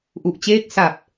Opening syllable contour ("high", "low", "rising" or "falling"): low